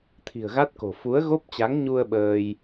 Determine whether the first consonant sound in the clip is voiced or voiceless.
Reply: voiceless